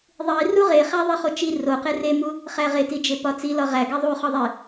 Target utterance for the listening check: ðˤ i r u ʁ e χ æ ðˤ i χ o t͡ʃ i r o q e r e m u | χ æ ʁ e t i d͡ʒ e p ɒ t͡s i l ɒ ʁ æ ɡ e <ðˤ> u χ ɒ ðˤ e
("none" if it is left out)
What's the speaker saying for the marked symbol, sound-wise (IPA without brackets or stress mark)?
ðˤ